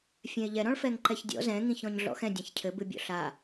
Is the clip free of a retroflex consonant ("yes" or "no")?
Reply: no